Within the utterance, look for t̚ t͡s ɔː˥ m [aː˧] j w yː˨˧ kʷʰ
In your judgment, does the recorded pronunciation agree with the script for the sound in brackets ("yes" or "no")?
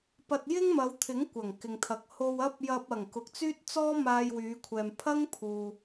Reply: yes